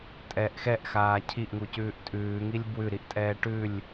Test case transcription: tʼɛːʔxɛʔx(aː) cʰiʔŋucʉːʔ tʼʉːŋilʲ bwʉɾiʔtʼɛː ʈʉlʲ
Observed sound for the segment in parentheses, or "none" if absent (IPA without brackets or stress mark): aː